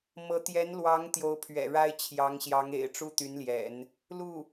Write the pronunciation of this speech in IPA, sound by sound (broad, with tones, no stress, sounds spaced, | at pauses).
m ɤ˧˥ t̪ j ɛ˧˥ n l w ɑ˧˥ ŋ t̪ j o˧˥ ʊ̯ pʰ ɥ ɛ̰˨˩ ɻ a˥ ɪ̯ t͡ɕʰ j ɑ˧˥ ŋ ɕ j ɑ˧˥ ŋ ḛ˨˩ ɪ̯ ʈ͡ʂ u˥ t̪ y˧˥ n l j ɛ̰˨˩˦ n | l u˥˩